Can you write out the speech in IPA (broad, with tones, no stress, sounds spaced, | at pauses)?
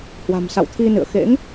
h w a̤˨˩ m s a̰˧˨ w t̪ʰ i˧ n ɨ̰˧˨ ə̯ x ḛ˧˥ ŋ